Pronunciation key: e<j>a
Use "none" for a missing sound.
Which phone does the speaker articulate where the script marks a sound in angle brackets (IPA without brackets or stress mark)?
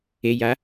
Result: j